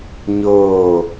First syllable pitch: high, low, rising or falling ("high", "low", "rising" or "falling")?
falling